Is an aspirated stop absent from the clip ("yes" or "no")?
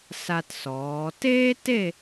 yes